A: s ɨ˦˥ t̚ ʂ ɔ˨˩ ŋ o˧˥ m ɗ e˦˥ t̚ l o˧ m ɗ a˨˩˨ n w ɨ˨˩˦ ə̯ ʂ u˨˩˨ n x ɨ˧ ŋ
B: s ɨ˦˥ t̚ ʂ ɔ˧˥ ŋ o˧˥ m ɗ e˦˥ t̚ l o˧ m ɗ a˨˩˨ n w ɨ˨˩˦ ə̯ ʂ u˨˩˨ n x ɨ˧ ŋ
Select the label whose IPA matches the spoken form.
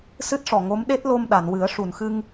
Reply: A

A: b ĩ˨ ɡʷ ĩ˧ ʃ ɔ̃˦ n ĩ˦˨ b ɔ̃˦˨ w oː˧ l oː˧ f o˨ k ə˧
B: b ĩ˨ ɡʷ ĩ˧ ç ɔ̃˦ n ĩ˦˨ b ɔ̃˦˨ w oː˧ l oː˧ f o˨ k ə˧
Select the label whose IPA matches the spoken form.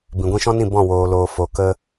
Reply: A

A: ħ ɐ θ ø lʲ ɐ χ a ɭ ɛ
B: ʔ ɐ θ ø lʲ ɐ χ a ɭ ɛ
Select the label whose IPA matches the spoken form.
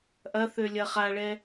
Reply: B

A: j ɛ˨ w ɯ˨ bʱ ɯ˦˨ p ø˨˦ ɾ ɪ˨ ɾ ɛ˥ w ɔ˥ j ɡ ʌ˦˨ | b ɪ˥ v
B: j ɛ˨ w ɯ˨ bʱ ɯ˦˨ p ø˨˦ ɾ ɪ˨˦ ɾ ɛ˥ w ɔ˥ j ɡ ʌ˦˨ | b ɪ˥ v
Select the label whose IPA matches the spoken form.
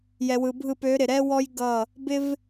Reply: A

